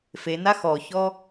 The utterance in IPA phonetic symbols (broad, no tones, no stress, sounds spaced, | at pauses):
f e n a x ɔ ç ɔ